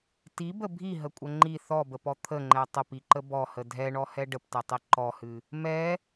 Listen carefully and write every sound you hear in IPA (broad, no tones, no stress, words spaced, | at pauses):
tibə bʱiɦəkʷʼə ŋ͡ǃi θɔbəpɔ t̪ʰəŋ͡ǃɛ tˤəpiǃə bɔhə dʱɛɳɔhɛ ɖəptɛtˤi ǃɔhɨ | mɛ